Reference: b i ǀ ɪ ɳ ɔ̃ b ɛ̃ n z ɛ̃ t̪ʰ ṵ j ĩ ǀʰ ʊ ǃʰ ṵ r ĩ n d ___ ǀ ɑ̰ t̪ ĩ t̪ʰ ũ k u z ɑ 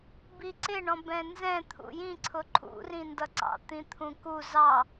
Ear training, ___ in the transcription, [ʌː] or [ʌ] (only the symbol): ʌ